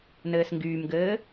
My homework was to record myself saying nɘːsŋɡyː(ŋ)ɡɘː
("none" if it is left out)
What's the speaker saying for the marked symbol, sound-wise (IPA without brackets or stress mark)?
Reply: m